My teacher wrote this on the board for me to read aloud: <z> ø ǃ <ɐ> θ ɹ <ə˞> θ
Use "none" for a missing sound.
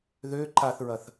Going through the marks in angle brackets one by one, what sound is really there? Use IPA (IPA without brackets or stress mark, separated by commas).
ð, a, ɐ